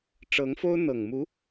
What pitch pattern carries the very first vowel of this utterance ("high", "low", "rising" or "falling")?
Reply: rising